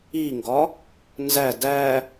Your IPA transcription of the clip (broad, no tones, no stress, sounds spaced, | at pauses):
i ŋ ɡ ɒ | n z æ d æ